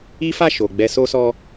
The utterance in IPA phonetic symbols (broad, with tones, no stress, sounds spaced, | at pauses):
i˦ f a˦˨ ʃ o˨ ɡ͡b ɛ˧ s o˦ s ɔ˦